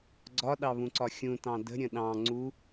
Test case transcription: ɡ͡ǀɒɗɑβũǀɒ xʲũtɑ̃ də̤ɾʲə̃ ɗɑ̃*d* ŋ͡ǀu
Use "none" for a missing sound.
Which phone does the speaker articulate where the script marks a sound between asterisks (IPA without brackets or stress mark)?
none